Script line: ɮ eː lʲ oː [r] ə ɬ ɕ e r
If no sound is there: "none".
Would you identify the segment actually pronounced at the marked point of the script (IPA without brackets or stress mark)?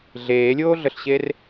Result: ɮ